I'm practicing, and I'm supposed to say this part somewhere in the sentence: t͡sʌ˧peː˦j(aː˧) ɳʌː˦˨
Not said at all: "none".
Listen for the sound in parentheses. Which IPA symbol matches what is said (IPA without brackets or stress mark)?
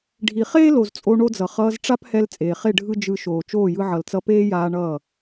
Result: aː˧